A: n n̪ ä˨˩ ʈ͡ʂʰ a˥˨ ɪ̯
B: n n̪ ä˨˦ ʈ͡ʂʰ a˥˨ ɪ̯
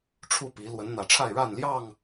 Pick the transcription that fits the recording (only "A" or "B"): A